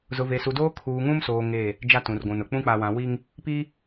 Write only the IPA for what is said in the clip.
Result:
z ʊ˨ v e˨ s u˨ d oː˦ kʰ uː˨ ŋ ũ˦ m s oː˨ ŋ e˦˨ | d͡ʒ a˦ t ũ˨ r ɡʷ ũ˨ n ʊ˨ k͡p ũ˦ k͡p a˨ w ã˨ w i˦ ŋ | p i˦

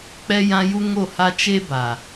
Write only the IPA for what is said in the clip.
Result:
k͡p ɛ˦ j ã˦ j u˦ ŋ o˦˨ h a˦ t͡ʃ e˦ b a˨

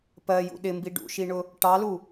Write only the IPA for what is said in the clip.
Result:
p ɜ j ṵ ɗ ɪ m b i ɖ ṵ ʃ i ɳ ʊ | ʈ ɑ l u

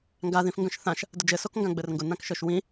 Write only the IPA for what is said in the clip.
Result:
ŋ ɡ a ð ĩ f ŋ ɡ œ̃ ʃ θ ã ʃ | d ʊ d͡ʒ ɘ s o k ŋ ɡ ã ɡ͡b ɘ r ŋ ɡ ʊ n ã k ʃ œ ʃ w ĩ

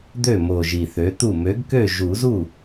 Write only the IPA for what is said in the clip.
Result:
d̪ ø˥˩ m o˨˩ ʒ i˨˩ θ ø˩˥ t̪ u˥˩ m ø˩˥ ɡ k ø˥˩ ʒ u˨˩˦ z u˥˩

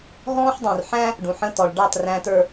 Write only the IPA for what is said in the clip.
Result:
ɦ ɔ̃ː˦ ħ dˤ ũ˨ r ħ æ̃˦ | ɖ ũ˨ ħ ə̃˦ t ɔ˨ ɭ ɖ ɑ˦˨ t r æ̃˨ t ə˞˨

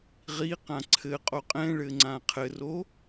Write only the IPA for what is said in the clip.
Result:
ʁ i q ã ǀʰ ɘ qʼ o qʼ ɛ̃ ɭ ɘ ŋ͡ǀ ã qʰ ɘ r o

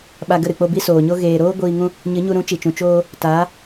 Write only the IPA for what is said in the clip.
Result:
ɓ a˧ ɡ ə˦˨ ɾ ɨ˨ k͡p o˧ b i˦ s oː˨ ɲ o˦ ɣ eː˨ ɾ oː˦ ɡʷ iː˧ ŋ ũ˧ | ɲ ɨ˨˦ ɲ u˧ ɾ ũ˨˦ t͡ʃ i˨ t͡ʃ ũ˨ t͡ʃ oː˧ | t aː˨˦

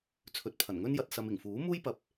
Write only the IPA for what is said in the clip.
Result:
t͡sʰ ɵ˨ t̚ pʰ ɐ˨˩ n ŋ ɵ˥ n j ɐ˧ t̚ s ɐ˨ m ɪ˨˩ ŋ f uː˨˥ m uː˥ j p ɐ˧ p̚

